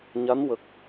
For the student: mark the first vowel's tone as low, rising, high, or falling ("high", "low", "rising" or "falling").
rising